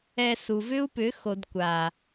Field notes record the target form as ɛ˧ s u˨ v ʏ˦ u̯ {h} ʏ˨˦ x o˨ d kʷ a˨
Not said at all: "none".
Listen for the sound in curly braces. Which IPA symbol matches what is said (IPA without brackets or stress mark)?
p